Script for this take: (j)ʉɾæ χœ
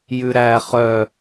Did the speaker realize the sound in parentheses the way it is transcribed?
yes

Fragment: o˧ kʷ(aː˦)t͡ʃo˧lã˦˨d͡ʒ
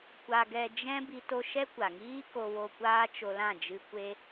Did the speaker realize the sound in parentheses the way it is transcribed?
yes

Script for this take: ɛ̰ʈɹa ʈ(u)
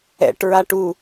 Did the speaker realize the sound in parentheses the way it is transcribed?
yes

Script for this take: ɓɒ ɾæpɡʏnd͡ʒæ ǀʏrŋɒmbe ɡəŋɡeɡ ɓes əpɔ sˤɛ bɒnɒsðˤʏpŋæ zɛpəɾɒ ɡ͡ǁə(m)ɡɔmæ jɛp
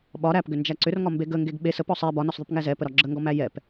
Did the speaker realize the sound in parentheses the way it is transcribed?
no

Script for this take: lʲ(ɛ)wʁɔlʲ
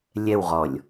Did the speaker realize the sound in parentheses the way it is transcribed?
yes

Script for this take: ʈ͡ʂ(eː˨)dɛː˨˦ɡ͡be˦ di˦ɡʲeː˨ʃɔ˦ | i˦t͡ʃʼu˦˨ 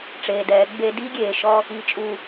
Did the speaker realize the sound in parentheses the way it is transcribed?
yes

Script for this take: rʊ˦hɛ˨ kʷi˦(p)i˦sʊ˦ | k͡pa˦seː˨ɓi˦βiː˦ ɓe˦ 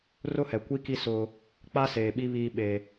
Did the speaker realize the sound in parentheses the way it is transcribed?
no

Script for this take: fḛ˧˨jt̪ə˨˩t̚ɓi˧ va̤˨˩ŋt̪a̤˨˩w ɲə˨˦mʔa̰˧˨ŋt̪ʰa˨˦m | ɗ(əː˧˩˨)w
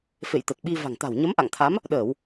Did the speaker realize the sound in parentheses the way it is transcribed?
yes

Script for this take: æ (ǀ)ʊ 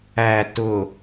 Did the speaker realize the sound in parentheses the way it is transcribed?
no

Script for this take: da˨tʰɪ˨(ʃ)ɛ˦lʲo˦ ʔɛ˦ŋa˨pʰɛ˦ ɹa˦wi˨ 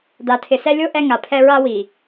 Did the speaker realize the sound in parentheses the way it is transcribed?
no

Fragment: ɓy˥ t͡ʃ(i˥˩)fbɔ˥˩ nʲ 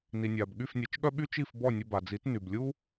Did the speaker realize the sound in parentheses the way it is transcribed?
yes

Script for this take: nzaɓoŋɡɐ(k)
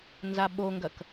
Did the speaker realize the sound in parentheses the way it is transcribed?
yes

